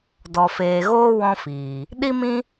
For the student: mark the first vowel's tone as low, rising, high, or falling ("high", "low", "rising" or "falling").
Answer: low